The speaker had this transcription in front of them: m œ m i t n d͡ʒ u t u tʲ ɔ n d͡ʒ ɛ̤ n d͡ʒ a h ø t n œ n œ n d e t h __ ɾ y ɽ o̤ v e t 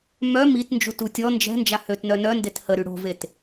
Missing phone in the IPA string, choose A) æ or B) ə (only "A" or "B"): B